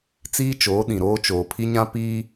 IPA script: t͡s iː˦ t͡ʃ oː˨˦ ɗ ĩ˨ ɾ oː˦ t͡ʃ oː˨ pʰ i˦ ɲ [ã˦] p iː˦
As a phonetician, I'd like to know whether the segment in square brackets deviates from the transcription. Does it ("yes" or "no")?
no